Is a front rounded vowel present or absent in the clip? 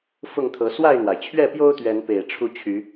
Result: present